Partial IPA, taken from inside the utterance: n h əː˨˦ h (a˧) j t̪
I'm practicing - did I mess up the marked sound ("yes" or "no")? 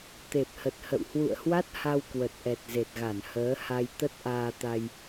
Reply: no